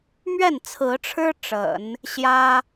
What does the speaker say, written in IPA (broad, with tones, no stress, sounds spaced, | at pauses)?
m ɥ ɛ˥˩ n t͡sʰ ɹ̩˧˥ ʈ͡ʂʰ ɻ̩˥ ʈ͡ʂ ə̰˨˩˦ n | ɕ j ä˥